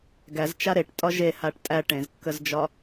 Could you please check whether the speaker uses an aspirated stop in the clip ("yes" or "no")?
no